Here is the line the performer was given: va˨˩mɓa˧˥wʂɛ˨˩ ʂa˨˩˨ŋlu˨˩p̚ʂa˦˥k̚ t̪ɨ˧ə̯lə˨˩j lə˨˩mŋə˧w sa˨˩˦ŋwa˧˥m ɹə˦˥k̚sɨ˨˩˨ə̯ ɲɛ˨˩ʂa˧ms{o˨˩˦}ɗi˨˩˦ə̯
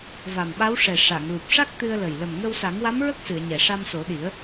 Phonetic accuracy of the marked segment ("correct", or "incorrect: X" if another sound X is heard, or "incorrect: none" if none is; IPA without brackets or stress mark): correct